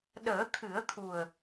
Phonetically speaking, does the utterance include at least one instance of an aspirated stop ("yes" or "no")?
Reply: yes